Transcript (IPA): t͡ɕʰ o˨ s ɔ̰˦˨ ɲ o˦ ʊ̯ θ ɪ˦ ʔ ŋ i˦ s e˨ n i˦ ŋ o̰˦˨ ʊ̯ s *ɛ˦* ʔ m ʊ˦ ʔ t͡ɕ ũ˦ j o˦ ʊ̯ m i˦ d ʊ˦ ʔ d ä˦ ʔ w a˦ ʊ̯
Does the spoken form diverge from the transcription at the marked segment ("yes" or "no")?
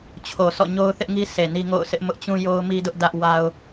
yes